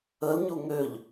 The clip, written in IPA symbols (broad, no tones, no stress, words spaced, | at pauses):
əl ɲuŋøʎ